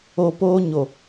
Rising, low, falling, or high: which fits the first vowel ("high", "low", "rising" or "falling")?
low